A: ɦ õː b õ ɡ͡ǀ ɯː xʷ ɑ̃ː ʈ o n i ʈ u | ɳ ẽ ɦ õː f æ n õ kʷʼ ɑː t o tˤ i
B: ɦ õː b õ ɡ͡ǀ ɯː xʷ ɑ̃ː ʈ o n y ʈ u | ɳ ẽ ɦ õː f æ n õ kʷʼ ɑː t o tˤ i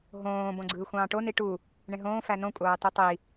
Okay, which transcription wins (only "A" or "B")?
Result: A